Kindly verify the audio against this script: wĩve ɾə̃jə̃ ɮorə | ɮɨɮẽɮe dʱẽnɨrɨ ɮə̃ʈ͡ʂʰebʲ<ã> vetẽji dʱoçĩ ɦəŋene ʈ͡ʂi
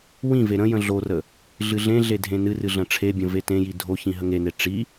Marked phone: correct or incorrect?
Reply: incorrect